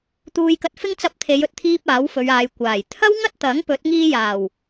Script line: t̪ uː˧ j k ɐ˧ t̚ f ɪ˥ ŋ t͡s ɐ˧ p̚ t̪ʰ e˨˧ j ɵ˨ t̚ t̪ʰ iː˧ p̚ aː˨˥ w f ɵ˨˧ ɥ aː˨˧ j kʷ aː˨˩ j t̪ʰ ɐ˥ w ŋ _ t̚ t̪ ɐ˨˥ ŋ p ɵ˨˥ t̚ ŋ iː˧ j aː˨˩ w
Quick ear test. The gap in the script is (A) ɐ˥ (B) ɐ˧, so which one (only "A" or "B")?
A